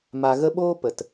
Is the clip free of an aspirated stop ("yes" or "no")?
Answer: yes